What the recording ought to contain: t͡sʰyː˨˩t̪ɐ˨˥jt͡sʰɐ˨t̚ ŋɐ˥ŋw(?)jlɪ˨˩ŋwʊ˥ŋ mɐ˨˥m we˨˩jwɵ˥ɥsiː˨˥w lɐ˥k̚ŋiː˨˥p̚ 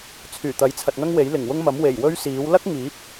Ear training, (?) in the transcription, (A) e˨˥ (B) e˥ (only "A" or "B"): A